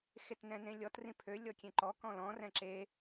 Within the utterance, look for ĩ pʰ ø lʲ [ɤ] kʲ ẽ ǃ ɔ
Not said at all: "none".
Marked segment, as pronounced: ɔ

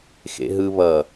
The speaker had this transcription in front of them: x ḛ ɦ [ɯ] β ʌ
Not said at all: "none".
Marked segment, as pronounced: ɯ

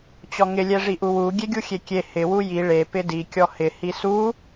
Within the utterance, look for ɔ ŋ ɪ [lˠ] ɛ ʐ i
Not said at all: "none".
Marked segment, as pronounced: lʲ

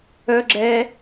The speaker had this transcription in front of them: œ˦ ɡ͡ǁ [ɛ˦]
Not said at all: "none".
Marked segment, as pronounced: ɛ˦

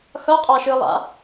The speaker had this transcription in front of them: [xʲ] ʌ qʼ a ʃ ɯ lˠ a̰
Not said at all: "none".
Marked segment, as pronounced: x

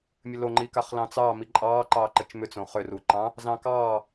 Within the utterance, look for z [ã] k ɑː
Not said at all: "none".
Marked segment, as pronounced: ɑ̃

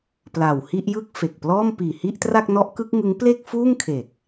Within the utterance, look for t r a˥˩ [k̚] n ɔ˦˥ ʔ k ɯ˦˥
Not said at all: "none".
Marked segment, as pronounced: k̚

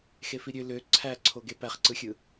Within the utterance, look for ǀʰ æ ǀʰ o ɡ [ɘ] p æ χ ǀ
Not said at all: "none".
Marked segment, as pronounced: e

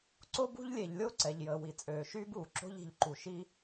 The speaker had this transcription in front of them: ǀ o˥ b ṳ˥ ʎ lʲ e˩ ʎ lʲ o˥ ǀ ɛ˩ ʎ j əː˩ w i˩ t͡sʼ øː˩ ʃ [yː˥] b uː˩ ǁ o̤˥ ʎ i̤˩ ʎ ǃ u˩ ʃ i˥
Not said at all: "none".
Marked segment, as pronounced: yː˥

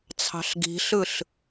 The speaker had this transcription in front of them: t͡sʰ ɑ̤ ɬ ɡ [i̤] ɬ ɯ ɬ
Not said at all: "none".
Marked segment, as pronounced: i̤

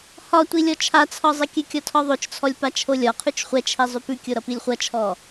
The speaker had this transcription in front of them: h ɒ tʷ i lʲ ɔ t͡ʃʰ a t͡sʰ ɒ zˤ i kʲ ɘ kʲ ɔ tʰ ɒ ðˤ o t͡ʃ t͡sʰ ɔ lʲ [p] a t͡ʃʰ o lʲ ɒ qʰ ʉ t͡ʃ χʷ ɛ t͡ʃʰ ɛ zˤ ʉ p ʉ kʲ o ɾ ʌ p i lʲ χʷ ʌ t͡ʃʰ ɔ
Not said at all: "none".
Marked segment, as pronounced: p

